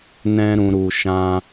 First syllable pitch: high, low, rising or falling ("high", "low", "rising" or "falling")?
high